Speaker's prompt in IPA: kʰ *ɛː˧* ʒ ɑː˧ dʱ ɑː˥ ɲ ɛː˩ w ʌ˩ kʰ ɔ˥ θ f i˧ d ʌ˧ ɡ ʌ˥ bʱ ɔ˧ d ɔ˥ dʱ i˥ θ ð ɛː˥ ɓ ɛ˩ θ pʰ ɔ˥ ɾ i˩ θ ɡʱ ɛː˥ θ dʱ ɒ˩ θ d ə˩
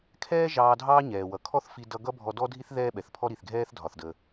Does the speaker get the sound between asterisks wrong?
yes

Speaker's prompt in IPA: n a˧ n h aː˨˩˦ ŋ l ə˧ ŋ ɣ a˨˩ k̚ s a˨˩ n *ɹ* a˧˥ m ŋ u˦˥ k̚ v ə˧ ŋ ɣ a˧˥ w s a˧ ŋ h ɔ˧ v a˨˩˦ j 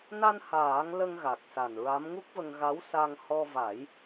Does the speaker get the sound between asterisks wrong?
no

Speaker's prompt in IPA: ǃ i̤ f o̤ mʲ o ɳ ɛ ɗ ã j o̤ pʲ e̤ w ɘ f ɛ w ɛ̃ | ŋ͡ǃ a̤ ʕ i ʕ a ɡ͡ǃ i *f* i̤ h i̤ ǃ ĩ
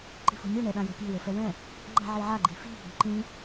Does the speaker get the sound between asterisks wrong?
no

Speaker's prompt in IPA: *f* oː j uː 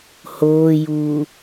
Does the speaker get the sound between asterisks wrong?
yes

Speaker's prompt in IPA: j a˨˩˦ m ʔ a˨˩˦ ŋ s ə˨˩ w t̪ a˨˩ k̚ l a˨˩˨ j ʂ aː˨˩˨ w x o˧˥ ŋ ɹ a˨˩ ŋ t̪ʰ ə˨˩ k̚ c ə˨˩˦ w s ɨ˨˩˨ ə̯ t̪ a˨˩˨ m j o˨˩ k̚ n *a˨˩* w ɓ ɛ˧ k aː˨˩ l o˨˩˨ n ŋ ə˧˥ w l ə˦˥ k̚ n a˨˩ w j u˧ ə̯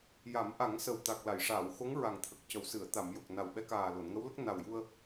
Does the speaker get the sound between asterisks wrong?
no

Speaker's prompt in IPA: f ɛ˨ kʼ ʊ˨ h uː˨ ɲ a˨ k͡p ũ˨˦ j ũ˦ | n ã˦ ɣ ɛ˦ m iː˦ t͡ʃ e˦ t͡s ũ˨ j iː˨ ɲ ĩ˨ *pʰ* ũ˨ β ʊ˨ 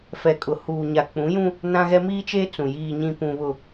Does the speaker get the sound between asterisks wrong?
yes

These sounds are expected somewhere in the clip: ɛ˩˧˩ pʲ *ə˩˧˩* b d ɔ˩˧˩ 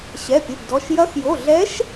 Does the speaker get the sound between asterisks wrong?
no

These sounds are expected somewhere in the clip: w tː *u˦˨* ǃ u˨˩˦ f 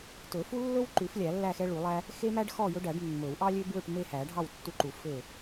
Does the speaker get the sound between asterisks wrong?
yes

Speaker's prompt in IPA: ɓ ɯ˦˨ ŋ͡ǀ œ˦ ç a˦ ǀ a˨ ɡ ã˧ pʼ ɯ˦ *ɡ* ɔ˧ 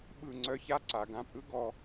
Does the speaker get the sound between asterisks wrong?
no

